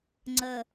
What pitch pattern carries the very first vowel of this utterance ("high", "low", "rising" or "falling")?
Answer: low